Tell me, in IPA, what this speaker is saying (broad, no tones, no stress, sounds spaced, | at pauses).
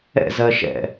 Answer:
ɛ̰ z ɜ ʃ ɛ̰